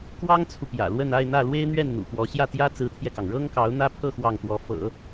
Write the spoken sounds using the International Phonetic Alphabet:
k w ɑ˥ ŋ t͡sʰ u˨ p j ä̰˨˩ l w ə˥˧ n a˥˧ ɪ̯ n̪ ä˥˩ l w e˥ ɪ̯ n̪ ɥ ɛ˥˩ n n̪ ṵ˨˩ p w ɔ˧˥ ɕ j ä˥˩ t̪ j ä˥ t͡s ɹ̩˧˥ t̪ʰ j ɛ˧ k ɑ˩ ŋ ɻ ɤ˥ ŋ k ɑ˧˥ ʊ̯ n̪ ä˥ pʰ ɤ˥˧ x w ɑ˥˩ ŋ t̪ w ɔ˧˥ f ɤ̰˨˩˦

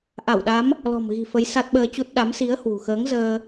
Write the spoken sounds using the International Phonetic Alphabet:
ʔ a˧˩ w ɗ a˨˦ m | l ɔ̤˨˩ m ɣ i̤˨˩ f ə˨˦ j s a˦˥ t̚ ɓ əː˧ t͡ɕ u˦˥ t̚ ɗ a˨˦ m s i˨˦ ə̯ h w ṳ˨˩ x əː˨˦ ŋ z əː˧

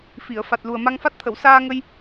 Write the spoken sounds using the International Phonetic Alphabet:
f i˨˩˨ ə̯ f a˨˩ t̚ l u˨˩ ə̯ m a˧ ŋ f a˦˥ t̚ t̪ʰ ə˨˩˨ w s aː˧ ŋ ə˧ j

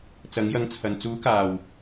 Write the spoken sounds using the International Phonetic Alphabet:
t͡s ɐ˨˥ ŋ j ɐ˧ ŋ t͡sʰ ɐ˨ n t͡s uː˨˥ k aː˨˩ w

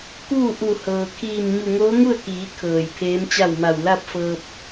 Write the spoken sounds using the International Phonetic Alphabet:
k uː˥˨ ʔ u˧˩ h ɤː˩ kʰ iː˧˩ m ɲ u˧˩ ŋ oː˧˥ ŋ u˥˨ ə̯ k iː˩˧ kʰ ɤː˩ j pʰ eː˧˥ m t͡ɕ a˥˨ w m a˧˩ w l a˥˨ p̚ f ɤː˧ p̚

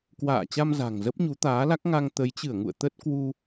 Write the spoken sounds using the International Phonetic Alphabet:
k w a̰ː˧˨ t͡ɕ a˧ m z a̤˨˩ ŋ z ə˦˥ p̚ ɲ u˨˦ t̪ aː˨˦ l a˦˥ k̚ ŋ a˧ ŋ t̪ ə˨˦ j t͡ɕ ɨ˧˩ ə̯ ŋ ṵ˧˨ ə̯ t̪ ə˦˥ t̚ k w u˧

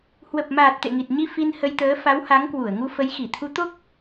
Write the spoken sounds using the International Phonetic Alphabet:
h w ə˨˩ p̚ m aː˨˩ t̚ t̪ ḛ˧˨ ŋ i˨˩ t̚ ɲ i˧ f i˧ n h ə˧ j t̪ əː˨˦ f a˨˦ w h a˨˦ ŋ k w u˧˩ ə̯ ŋ u˧ f ə˨˦ j x i˧˩ t̪ʰ u˨˦ t̪ o˦˥ k̚

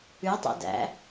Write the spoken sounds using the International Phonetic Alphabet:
ʉ tˤ ɛ̰ d æ̰

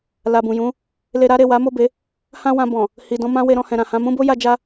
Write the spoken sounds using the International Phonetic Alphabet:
l a˨ b ũ˨ j ũ˨˦ | l e˧ ɾ a˦ ɾ e˦˨ w a˨˦ m o˦˨ b e˨˦ | h ã˦ w ã˧ b ɔ̃˨ | h i˨ d ɔ̃˧ m ã˦ w e˧ ɾ ɔ̃˧ h ɛ̃˨ ɾ ã˨ h ã˧ m ũ˦ b o˦ j a˦ d͡ʒ a˦

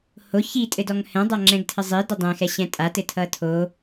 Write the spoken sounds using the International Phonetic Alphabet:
h o ç i tʼ ɘ d ɔ ŋ h ɛ̃ dˤ a ŋ͡ǁ ɛ̃ ɡ tʰ ɘ zˤ i d o dˤ ɛ̃ x ɛ ɕ ɛ̃ tʼ a t ɘ tʰ ʌ tʰ o

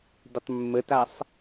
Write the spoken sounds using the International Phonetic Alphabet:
d ɪ tˤ mː ə t a sˤ

